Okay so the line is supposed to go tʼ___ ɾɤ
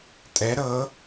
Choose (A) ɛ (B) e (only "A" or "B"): A